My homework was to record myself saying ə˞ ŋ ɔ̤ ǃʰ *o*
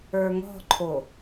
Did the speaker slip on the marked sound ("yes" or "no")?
no